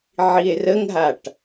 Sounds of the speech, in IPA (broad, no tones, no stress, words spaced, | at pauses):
ʕie̯rəŋɦaʈ